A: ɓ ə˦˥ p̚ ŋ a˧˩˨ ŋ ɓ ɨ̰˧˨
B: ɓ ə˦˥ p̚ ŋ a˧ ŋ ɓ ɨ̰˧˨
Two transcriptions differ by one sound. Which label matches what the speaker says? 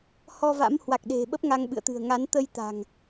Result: B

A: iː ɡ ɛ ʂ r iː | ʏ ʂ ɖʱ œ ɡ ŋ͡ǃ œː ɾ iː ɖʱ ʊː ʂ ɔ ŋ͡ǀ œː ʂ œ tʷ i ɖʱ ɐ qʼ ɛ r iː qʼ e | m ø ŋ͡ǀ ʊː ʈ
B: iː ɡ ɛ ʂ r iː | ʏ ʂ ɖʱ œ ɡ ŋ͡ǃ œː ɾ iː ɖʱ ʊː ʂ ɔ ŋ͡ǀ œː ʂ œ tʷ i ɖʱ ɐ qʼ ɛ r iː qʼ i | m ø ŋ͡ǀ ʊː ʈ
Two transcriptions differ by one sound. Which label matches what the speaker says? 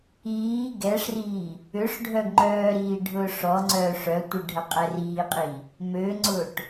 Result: B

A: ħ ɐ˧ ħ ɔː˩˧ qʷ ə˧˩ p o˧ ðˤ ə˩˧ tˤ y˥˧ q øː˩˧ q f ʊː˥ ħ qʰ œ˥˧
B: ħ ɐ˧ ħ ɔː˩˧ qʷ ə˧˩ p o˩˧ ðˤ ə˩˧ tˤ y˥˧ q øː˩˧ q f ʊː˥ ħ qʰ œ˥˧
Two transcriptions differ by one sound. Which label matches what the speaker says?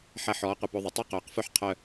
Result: A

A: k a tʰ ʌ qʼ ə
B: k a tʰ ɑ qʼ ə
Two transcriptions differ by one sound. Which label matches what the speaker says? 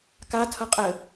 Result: A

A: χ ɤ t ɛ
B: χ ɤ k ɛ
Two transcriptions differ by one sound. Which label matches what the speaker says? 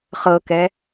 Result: B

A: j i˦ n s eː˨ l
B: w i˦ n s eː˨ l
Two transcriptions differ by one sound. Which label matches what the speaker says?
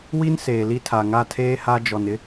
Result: B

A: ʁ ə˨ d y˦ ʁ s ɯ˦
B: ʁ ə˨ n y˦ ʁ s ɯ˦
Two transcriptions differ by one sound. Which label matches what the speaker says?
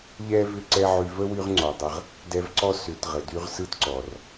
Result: A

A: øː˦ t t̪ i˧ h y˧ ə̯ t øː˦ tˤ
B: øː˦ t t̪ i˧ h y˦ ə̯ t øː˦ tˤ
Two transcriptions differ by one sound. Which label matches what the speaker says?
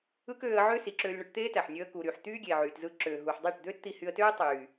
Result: A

